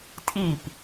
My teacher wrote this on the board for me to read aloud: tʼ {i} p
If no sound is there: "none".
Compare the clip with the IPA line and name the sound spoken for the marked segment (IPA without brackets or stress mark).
i